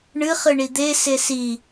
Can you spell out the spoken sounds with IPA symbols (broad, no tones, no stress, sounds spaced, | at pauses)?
ɳ ɨ χ ɨ ɳ i d̪ e s e s i